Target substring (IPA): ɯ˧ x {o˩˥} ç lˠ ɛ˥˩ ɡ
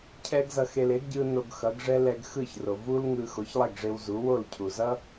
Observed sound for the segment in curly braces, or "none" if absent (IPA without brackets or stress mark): o˩˥